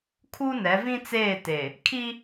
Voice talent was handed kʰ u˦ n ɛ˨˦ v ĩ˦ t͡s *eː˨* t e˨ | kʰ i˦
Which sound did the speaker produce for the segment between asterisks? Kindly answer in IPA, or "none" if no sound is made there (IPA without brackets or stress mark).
eː˦˨